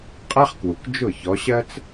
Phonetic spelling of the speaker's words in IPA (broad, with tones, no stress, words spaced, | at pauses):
qʼæ˥χkwu˩k d͡ʒʊ˥˩çɔ˨˦ ɕɜ˥t͡s